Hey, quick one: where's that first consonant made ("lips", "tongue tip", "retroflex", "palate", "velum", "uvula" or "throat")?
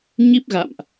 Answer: palate